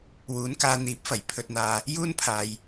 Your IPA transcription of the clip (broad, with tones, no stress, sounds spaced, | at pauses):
w uː˨˧ n k aː˧ n̪ iː˨˥ p̚ f ɐ˨˩ j pʰ ɵ˨ t̚ n̪ aː˨ | j uː˥ n pʰ aː˨ j